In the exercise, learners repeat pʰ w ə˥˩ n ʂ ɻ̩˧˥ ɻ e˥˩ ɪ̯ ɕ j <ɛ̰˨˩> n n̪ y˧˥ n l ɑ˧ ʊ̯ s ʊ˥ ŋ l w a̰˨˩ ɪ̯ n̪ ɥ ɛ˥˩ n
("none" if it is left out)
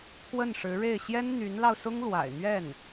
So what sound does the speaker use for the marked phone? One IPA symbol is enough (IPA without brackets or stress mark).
ɛ˥